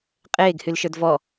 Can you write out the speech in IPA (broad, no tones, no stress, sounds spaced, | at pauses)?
qʼ eː ɡ h y l ʃ ə˞ d v ɔ